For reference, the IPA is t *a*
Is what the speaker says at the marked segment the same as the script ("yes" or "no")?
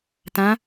no